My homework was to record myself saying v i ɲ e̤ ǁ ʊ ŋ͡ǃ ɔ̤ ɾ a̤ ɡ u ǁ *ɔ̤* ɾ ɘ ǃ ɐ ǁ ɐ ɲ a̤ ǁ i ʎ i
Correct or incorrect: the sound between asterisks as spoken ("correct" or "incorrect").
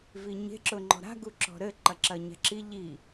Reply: correct